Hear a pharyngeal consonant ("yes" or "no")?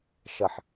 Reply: yes